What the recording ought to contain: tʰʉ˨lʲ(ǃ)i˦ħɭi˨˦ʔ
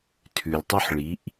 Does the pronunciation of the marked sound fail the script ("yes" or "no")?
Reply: yes